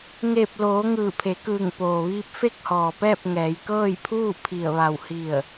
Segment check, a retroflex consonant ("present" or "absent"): absent